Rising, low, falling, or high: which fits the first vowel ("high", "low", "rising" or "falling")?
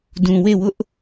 low